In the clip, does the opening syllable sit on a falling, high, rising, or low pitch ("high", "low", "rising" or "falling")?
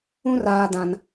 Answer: high